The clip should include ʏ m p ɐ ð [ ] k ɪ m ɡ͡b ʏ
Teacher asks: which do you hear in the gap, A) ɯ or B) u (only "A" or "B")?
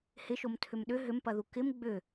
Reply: B